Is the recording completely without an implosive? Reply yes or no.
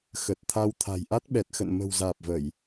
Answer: no